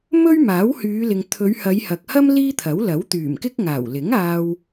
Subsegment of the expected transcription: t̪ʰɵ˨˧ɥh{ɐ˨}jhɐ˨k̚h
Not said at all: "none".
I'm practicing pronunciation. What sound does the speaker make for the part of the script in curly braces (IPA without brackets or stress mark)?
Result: ɐ˨˧